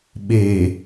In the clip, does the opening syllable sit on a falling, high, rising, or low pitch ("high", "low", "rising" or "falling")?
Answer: low